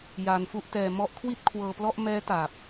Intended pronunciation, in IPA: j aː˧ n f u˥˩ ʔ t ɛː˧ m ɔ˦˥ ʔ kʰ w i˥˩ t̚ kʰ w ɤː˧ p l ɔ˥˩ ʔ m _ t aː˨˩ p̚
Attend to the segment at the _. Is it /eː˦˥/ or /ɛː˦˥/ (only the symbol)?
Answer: ɛː˦˥